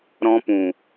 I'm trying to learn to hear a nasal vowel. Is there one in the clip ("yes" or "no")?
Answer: yes